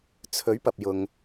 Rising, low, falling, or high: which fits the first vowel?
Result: rising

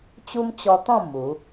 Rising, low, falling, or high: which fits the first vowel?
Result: high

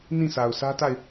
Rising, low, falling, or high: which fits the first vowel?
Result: falling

